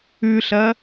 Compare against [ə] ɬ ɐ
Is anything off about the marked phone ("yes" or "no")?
yes